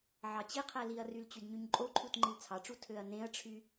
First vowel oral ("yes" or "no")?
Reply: yes